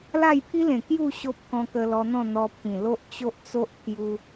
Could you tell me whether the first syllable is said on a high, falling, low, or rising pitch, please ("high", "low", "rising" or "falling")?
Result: falling